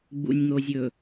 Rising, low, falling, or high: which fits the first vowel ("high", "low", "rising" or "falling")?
low